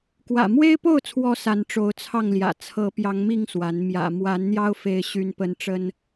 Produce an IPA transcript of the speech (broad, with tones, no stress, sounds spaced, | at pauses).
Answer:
k w ä̰˨˩ m w e˦ ɪ̯ p o˥˨ ʊ̯ t͡sʰ w ɔ˨˦ s a˨˦ n ʈ͡ʂ o˨˦ ʊ̯ t͡sʰ ɑ˥˨ ŋ l j ä̰˨˩ t͡sʰ ɤ˨˦ p j ɑ˨˦ ŋ m i˥˨ ŋ s w a˨˦ n m j ä̰˨˩ m w a˨˦ n n̪ j ɑ˦ ʊ̯ f e˨˦ ɪ̯ ɕ y˦ n p ə˦ n ʈ͡ʂ ə˦ n